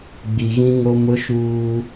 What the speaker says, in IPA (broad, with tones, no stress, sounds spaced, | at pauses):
ɡ͡b i˨ ɣ ĩ˦ ŋ o˦ m ʊ˦ ʃ uː˦